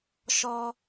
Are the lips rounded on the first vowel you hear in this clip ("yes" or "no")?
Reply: yes